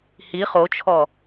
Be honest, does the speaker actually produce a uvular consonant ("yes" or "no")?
yes